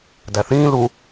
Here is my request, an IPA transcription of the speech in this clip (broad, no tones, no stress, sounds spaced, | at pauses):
d æ θ ĩː l u